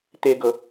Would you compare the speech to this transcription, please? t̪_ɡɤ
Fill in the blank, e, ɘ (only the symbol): e